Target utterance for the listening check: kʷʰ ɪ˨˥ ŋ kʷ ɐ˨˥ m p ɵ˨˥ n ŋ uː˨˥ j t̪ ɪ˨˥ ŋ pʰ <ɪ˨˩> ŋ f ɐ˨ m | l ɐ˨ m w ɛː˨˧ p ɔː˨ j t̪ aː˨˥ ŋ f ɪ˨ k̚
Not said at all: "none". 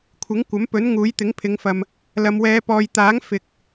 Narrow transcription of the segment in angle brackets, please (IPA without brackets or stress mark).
ɪ˨˧